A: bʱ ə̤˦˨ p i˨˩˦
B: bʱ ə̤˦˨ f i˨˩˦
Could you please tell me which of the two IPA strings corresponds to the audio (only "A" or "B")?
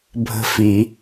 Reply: B